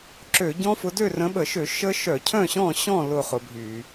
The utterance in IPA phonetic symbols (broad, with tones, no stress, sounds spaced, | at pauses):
ǁ ø˧˩˧ ɟ ɔ̃˦˥ f ʊ˨˦ d ø˥˨ r ə̃˨˦ ɓ ə˧˩˧ ʃ ø˧˩˧ ʃ ə˦˥ ʃ œ˧˩˧ cʰ œ̃˥˨ ɕ ɔ̃˥˨ ɕ ɔ̃˥˨ l ʊ˥˨ χ ʊ˨˦ bʱ y˧˩˧